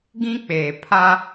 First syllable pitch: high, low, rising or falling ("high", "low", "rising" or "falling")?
high